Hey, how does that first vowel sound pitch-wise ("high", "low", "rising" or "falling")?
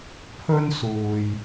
high